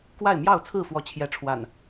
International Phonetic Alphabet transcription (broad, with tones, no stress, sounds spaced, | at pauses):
k w a˥˨ ɪ̯ m j ɑ˥˨ ʊ̯ t͡sʰ ɹ̩˥˨ f w ɔ˨˦ t͡ɕʰ j ɛ˨˦ ʈ͡ʂʰ w a̰˨˩ n